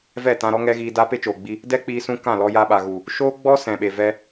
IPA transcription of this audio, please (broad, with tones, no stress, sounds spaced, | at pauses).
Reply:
v ɛ˦˨ t ã˧ ɾ ɔ˦ ŋ ɛ˦ ɣ iː˧ d aː˦ p e˦ t͡ʃ oː˨ ɡ͡b i˧ | d ɛ˦ k͡p iː˧ s ũ˧ k ã˦˨ l ɔ˧ j a˧ ɓ a˨ ɣ u˨ | ʃ oː˦ ɡ͡b ɔ˦ s ɛ̃˨ ɓ e˨ v ɛ˧